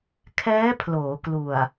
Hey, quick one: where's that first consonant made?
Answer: velum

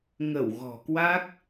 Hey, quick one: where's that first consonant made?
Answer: velum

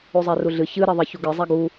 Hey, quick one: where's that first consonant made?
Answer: tongue tip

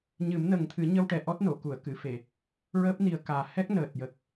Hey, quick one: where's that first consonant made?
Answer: palate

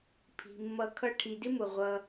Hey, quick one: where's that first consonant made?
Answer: lips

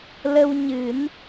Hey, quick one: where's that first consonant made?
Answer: tongue tip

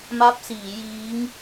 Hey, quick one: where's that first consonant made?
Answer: lips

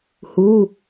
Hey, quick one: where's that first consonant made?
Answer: throat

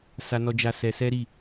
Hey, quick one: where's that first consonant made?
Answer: tongue tip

